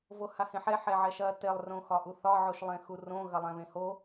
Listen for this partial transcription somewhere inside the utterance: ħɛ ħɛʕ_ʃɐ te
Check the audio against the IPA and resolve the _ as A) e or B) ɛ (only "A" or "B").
B